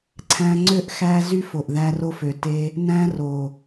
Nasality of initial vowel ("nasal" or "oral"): nasal